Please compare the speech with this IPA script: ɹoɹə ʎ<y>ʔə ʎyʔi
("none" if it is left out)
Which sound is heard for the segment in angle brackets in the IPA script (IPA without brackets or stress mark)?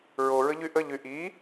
y